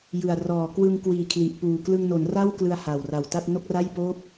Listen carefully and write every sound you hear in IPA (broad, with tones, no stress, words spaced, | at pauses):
jɯ˨˩a̯rɔː˨˩ kwɯ˧ŋkwiː˨˩kʰli˨˩ʔpuː˨˩ klɯ˧ŋno˩˦nra˥˩w klɯ˧a̯ ha˨˩wra˨˩wta˥˩t̚ no˥˩k̚ra˥˩j poː˥˩p̚